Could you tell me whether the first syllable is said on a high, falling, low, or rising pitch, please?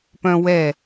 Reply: high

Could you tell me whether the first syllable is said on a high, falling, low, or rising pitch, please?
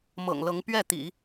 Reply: low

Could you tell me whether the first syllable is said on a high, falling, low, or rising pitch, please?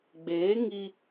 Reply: rising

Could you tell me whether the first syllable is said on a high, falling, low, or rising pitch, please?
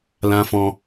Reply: low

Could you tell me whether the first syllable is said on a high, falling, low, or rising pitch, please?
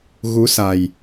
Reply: rising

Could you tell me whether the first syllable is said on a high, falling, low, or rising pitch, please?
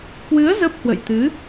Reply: rising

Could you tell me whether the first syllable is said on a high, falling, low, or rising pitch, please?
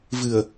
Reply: low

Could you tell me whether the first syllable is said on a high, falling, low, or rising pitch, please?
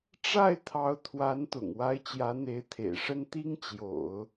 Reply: falling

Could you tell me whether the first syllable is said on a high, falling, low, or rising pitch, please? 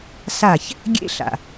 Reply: falling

